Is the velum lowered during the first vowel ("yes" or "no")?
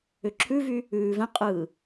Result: no